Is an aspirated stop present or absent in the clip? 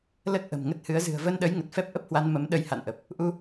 absent